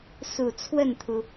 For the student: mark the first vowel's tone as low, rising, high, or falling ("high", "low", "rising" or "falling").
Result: low